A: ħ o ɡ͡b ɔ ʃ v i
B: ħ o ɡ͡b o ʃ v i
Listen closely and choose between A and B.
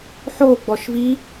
A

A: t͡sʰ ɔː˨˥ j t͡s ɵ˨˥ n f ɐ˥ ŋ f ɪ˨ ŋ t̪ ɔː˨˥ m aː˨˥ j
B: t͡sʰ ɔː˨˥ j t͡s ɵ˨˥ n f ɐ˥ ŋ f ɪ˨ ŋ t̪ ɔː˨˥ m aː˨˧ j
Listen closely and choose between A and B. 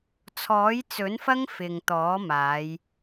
B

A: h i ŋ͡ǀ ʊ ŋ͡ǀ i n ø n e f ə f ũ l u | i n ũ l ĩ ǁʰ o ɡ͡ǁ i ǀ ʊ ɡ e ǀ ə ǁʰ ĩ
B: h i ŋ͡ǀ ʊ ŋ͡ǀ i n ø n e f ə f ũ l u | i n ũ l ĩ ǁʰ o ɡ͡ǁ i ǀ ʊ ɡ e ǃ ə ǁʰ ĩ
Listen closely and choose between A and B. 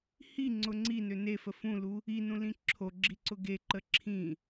B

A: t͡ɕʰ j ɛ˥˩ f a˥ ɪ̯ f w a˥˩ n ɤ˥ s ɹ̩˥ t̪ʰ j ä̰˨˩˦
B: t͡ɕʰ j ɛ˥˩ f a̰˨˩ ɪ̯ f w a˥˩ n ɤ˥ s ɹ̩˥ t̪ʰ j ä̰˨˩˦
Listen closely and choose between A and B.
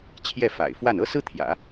B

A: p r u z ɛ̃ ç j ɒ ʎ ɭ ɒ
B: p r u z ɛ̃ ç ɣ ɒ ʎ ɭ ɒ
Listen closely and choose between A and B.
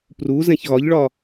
B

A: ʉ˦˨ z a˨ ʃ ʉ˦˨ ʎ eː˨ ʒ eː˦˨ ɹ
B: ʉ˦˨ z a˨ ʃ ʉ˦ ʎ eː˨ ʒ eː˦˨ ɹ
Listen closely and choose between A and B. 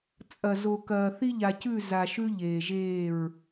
B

